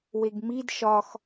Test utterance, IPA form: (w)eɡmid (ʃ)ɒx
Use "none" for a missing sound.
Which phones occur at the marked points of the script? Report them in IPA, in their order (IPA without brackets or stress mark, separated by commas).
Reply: w, ʃ